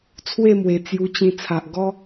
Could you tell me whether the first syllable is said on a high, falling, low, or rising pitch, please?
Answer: falling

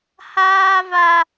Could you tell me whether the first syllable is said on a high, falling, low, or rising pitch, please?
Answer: high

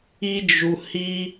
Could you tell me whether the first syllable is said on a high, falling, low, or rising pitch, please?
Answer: high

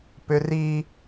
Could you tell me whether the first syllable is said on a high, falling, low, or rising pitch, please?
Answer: high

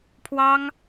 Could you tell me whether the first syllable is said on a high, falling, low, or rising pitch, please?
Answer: high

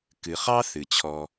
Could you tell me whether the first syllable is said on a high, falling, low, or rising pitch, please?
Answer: low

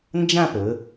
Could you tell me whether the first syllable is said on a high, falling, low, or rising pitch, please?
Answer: falling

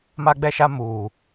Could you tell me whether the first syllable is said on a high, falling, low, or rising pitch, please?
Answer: high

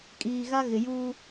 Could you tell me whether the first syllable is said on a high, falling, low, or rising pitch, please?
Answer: low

